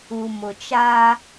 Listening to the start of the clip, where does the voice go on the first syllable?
low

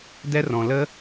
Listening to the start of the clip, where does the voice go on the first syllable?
high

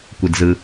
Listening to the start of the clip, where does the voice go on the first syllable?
low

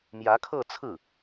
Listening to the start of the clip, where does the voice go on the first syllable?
rising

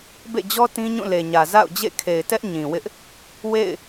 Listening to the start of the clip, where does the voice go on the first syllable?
falling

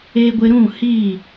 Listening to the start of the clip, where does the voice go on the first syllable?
low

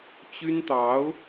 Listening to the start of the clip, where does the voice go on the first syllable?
high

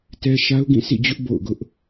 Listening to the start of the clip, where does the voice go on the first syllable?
high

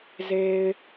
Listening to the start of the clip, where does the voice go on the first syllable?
low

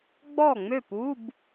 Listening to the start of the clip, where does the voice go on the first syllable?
falling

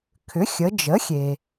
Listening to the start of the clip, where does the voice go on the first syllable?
rising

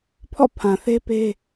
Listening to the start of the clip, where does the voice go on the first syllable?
falling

